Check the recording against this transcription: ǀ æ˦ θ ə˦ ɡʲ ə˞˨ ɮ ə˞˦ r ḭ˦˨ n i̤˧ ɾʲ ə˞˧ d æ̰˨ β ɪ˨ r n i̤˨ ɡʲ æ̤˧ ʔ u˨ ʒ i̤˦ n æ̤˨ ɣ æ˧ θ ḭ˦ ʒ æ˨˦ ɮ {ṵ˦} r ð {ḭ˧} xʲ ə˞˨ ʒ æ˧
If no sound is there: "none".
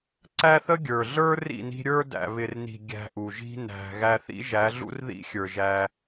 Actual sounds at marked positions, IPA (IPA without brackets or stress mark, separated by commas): ṵ˦, ḭ˦